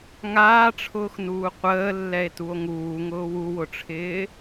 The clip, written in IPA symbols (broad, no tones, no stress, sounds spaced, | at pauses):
ŋ aː ʈ͡ʂʰ ʊː x n uː qʷ əː lː ɛ e̯ t u o̯ ŋ uː ŋ ʊː w u w ʊ ʈ͡ʂʰ ɪː